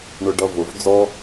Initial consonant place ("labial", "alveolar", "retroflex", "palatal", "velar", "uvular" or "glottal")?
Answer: retroflex